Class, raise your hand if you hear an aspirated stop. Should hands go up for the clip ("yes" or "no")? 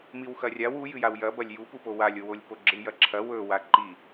yes